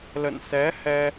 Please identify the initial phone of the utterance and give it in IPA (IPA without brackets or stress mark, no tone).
l